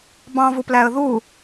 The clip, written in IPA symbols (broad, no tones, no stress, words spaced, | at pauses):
bɑ̃vuplæə̯ ðu